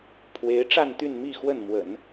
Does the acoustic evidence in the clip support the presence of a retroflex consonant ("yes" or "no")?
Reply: yes